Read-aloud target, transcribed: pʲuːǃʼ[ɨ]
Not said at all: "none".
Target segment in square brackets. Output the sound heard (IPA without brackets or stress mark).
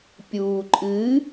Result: ɨ